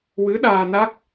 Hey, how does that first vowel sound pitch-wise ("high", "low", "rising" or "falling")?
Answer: rising